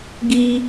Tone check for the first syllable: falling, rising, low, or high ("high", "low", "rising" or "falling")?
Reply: high